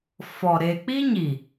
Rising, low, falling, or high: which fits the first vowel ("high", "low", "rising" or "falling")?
low